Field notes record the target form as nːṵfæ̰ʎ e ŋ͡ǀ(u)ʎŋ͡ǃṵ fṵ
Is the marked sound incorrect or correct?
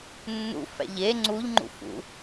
correct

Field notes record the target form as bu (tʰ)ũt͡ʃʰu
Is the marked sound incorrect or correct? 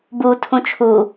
correct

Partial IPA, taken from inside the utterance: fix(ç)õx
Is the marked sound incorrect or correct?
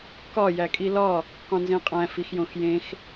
incorrect: j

